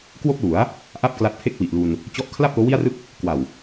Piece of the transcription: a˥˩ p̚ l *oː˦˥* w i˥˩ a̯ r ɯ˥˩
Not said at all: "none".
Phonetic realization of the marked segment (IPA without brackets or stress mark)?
oː˦˥